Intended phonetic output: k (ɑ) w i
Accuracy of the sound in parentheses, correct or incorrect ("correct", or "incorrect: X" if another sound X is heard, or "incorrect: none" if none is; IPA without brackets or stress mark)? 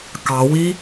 correct